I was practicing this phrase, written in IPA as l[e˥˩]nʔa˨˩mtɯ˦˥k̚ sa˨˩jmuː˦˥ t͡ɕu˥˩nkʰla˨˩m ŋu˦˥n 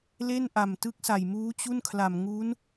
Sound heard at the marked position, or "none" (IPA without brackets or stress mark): e˥˩